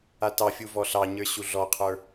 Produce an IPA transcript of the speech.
a t ɑ fʲ u v ɔ ɬ ɑ ɲ ə˞ ɕ u ɮ ɔ qʰ ə˞

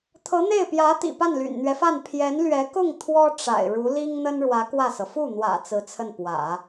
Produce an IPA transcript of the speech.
t̪ʰ ɤ˧˥ n̪ e˥˩ ɪ̯ p j ä˧˥ t̪ ḭ˨˩ p a˥˩ n l y̰˨˩ n n̪ ɥ ɛ˦ f a˥˩ n pʰ j ɛ˧˥ n l ɥ ɛ˧˥ k ʊ˥˩ ŋ t̪ʰ w ɔ˥ ʈ͡ʂ a̰˨˩ ɪ̯ ɻ u˧˥ l i˥ ŋ n̪ ə˥ n ɻ w ä˧˥ k w ä˥˩ s ɤ˩ f u˥˩ n̪ w ä̰˨˩ t͡s ɹ̩˧˥ t͡sʰ ə˥˩ n p w ä̰˨˩˦

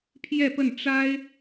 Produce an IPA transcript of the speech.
pʰ j ɛ˥˧ p ə˥˩ n ʈ͡ʂ a˥ ɪ̯

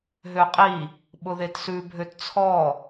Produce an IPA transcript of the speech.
ɦ ø qʼ i | ɓ ʊ ð e t s ʉ bʱ ø t t͡sʰ ɔ

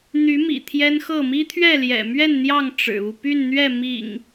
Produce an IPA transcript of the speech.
n̪ y˨˦ m ḭ˨˩ t̪ʰ j ɛ˦ n x ɤ˥˨ m i˦ t̪ʰ ɥ ɛ˥˨ l j ɛ̰˨˩ m ɥ ɛ˥˨ n n̪ j ɑ˥˨ ŋ ʈ͡ʂ ɻ̩˨˩ u˥˨ p y˥˨ n n̪ ɥ ɛ˥˨ m ḭ˨˩ ŋ

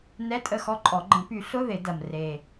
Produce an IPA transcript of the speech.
n ɛ˧˥˧ tʼ ə˦˨ x ɔ˧˥ ǃʼ ɔ˨˩˦ ɡ͡ǃ ə̃˨˩˦ p y˨˩˦ ɬ ʊ˧˥˧ ð ɪ˨˩˦ d ɐ˨˩ m r e˨˩

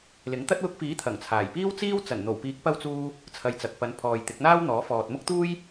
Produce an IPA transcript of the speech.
l ɪ˨˥ ŋ t̪ ɐ˥ t̚ w ʊ˧ k̚ f iː˨˥ t̪ʰ ɐ˨˩ ŋ t͡sʰ aː˨˩ j p iː˥ w t͡s iː˥ w t͡s ɐ˨˩ n n̪ o˨˩ w p iː˨˥ k̚ p ɐ˧ w t͡s uː˧ | t͡sʰ ɐ˨ j t͡s ɐ˨ k̚ p ɐ˨˧ n pʰ ɔː˨ j t̪ ɪ˨˥ k̚ n̪ aː˥ w n̪ ɔː˨˥ f ɔː˨ t̚ m ʊ˥ k̚ t̪ uː˥ j

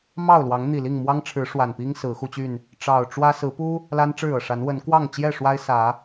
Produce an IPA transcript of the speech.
m ɑ˥˨ ʊ̯ l w ɑ˨˦ ŋ n̪ i˨˩ l i˥˨ ŋ m w ɑ˦ ŋ ʈ͡ʂʰ ɻ̩˨˦ ʂ w a˨˩ n p i˦ ŋ s ɹ̩˨˦ x u˧ t͡ɕ y˥˨ n | ʈ͡ʂ ɑ˨˩ ʊ̯ ʈ͡ʂ w ä˦ s ɹ̩˨˦ p u˦ | l a˦ n ʈ͡ʂ ɻ̩˥˨ ɤ˩ ʂ a˨˦ n w ə˨˦ n k w ɑ˥˨ ŋ t͡ɕ j ɛ˥˨ ʂ w a˦ ɪ̯ s ä˨˦

